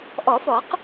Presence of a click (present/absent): absent